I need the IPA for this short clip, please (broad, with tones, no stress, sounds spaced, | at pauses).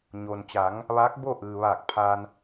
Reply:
ɲ o˩ n t͡ɕ a˩˧ ŋ | ʋ aː˧˥ k̚ b o˥˨ ʔ ɯː˩ ʋ aː˧˩ k̚ pʰ a˧ n